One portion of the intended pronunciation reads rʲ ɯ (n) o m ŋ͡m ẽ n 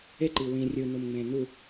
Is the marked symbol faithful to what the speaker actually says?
yes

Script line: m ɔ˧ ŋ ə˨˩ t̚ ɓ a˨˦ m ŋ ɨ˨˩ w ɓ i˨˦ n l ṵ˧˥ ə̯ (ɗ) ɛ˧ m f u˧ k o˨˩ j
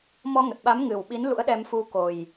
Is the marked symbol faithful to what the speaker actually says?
yes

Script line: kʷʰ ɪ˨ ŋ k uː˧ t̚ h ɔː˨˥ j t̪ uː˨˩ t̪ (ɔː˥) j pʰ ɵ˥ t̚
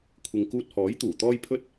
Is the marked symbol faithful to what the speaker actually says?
yes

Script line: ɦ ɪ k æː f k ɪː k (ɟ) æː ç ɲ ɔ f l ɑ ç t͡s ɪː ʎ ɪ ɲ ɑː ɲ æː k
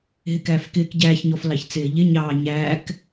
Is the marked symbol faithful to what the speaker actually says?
yes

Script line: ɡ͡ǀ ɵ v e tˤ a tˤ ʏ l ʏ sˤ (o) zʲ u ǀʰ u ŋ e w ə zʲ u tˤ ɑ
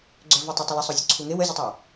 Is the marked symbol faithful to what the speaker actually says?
yes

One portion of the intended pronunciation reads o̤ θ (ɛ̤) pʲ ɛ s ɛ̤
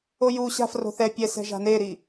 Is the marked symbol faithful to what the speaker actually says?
no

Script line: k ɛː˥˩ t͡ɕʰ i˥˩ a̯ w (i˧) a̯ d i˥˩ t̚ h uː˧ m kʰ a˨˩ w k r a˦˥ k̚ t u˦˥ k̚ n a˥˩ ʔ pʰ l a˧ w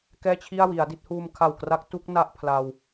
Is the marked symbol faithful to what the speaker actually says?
no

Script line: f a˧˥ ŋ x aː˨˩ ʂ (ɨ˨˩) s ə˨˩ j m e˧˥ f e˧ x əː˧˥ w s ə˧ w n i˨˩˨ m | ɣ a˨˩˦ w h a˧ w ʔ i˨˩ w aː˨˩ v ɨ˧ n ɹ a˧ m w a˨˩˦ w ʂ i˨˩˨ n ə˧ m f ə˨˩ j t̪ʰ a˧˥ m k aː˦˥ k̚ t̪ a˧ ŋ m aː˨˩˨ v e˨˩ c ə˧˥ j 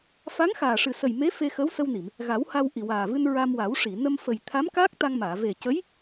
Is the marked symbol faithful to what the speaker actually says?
yes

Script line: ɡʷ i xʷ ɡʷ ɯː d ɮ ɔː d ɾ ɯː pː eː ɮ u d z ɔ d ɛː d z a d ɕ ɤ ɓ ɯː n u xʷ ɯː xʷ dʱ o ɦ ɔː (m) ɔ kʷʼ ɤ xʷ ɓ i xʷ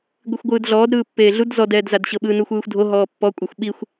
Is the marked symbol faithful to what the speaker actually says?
no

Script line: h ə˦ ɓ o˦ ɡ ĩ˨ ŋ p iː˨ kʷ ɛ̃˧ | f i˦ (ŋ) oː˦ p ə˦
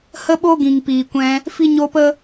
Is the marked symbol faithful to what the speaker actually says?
no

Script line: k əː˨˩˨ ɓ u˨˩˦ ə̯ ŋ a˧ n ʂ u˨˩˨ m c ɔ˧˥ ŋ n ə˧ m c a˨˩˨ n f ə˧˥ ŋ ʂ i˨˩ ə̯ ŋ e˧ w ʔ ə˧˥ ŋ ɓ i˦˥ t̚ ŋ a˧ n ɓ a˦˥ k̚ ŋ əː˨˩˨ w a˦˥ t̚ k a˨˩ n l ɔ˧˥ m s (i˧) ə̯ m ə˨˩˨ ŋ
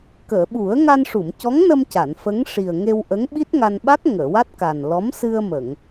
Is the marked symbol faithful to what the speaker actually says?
no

